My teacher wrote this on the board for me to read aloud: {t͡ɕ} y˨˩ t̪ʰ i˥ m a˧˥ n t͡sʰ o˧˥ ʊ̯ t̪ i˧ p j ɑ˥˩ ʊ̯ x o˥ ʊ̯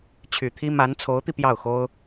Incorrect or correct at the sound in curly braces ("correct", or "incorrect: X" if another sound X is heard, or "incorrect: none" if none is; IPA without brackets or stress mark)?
incorrect: t͡ɕʰ